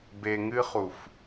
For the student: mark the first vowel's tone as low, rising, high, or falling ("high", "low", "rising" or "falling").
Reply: low